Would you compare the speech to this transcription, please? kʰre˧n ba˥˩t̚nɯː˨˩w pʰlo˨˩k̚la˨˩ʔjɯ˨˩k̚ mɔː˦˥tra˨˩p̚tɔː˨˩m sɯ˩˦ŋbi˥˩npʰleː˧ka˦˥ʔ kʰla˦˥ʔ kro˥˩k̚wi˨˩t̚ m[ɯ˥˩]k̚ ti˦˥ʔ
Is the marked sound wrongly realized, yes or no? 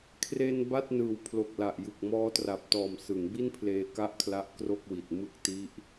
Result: no